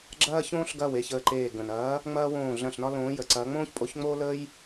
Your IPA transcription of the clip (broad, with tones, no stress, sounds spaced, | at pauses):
ɡ͡ǁ ɐː˦ ç õː˦ ɬ ɡ ɐ˥˨ w e˥˨ ç əː˧˩ ǃ eː˧˩ ɡ ə̃˩ n ɐː˨˦ | ŋ͡m ɐː˦ w õː˧˩ ɮ ɐ̃˧˩ ɬ n ɒ˦ l õː˨˦ j ə˩ ǀ ɐː˨˦ ŋ͡m õː˦ ç pʼ o˨˦ ç ŋ͡m oː˦ l əː˦ j